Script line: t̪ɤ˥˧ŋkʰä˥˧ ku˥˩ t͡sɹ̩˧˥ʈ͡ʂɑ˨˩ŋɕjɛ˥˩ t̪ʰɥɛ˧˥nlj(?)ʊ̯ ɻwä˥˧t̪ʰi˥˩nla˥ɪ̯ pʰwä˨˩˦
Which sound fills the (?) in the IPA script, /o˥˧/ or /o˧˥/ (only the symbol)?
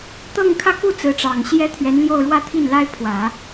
o˥˧